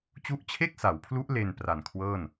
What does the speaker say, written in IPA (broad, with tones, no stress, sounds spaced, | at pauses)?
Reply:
t͡ɕ u˦˥ ʔ t͡ɕʰ e˥˩ k̚ s a˩˦ w pʰ l u˦˥ ʔ l e˧ n p r a˨˩ n kʰ w ɤː˥˩ n